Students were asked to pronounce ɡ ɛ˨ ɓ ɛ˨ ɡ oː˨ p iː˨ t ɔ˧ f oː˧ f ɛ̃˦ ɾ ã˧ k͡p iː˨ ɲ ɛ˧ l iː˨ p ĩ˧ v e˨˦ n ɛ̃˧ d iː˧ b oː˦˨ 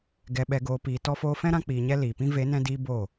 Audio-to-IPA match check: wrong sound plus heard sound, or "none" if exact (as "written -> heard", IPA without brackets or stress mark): none